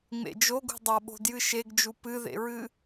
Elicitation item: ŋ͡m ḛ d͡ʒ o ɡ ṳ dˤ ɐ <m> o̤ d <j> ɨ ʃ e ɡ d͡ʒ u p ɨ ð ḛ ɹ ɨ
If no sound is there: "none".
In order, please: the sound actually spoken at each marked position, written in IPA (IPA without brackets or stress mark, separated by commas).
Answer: ɓ, j